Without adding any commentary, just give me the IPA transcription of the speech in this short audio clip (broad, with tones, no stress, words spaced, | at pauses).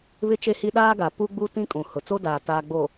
βɪ˦t͡ʃe˦hi˦ ɗaː˦ɡa˨ pu˦ɡ͡bu˦tĩ˦ kʼũ˨hʊ˨ t͡so˦daː˨ taː˨ɡ͡bo˨